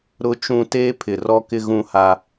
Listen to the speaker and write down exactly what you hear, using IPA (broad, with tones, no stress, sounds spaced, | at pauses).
ɾ ʊ˨ t͡ʃ ũ˨ t eː˦ pʰ ɪ˨ r ɔ˦ k ɪ˦ ɣ ũ˦ h a˦